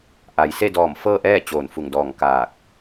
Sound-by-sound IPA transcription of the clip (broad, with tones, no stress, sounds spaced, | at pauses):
ʔ a˩ j s e˥˨ d ɔː˧˩ m f ɤː˥˨ ʔ ɛː˥˨ t͡ɕ oː˧˩ n f u˧˩ ŋ d ɔː˧˩ ŋ k aː˧˩ k̚